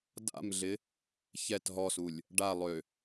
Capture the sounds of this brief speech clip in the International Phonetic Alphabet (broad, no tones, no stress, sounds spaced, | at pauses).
d a̰ m ɮ ɪ | ç ɛ t ɦ ɔ s u lʲ | ɖ a lˠ ø